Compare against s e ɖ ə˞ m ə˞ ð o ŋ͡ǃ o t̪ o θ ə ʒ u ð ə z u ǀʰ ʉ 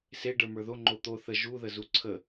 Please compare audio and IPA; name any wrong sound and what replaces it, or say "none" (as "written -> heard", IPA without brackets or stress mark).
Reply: ʉ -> ə